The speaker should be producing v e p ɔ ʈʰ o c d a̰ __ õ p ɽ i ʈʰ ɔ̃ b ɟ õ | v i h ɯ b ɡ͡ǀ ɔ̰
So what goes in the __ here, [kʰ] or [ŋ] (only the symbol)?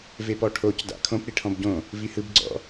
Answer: kʰ